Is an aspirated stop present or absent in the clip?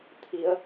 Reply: present